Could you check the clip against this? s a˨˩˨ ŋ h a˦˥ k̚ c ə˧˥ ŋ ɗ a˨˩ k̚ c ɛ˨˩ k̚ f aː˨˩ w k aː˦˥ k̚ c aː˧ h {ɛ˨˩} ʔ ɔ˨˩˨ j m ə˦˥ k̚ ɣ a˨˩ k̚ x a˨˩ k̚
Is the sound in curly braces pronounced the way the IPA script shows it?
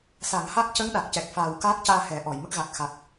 no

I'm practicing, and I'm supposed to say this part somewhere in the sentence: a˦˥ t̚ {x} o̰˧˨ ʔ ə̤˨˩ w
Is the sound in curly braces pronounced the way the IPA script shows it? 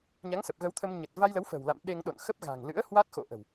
yes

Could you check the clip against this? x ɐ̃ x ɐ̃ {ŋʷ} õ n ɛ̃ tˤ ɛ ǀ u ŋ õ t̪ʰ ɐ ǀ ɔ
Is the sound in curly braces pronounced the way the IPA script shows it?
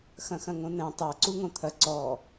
no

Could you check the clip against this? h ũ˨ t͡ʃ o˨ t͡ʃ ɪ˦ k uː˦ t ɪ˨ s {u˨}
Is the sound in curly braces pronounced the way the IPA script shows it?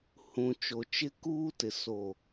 no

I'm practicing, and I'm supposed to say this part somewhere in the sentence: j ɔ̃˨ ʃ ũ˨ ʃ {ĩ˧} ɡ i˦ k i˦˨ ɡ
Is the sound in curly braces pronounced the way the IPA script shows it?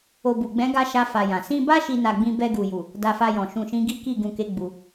no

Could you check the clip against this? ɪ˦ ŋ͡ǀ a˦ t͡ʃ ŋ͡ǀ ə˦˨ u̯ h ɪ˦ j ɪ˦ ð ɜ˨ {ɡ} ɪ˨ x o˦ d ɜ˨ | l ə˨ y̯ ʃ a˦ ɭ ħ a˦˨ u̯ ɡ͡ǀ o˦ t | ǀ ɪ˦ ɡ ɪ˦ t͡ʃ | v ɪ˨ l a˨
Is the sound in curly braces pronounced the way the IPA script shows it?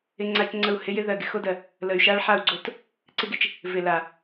yes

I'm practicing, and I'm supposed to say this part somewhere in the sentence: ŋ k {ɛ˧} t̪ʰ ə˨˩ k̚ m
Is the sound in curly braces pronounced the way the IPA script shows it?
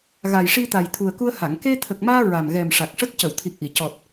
no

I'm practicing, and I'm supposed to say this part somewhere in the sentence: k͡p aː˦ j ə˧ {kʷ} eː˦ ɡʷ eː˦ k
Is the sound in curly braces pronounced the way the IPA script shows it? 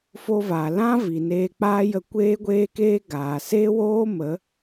yes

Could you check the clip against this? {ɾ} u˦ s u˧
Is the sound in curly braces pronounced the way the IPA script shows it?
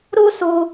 yes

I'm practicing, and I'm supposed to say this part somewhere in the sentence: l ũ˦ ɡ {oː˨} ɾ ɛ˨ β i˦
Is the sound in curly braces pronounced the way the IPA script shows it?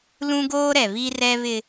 no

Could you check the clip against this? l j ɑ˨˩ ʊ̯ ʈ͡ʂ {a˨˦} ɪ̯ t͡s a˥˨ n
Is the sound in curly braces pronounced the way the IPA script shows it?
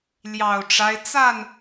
no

